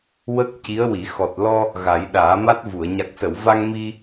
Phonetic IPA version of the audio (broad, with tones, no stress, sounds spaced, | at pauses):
w ə˦˥ k̚ c i˧˥ ə̯ w i˨˩˦ x ɔ˨˩ t̚ l ɔ˧ | ɣ a˨˩˦ j ɗ aː˨˩˦ m a˦˥ t̚ v u˨˩˨ ə̯ ɲ a˨˩ k̚ s ə˨˩˨ w v a˧ ŋ m i˧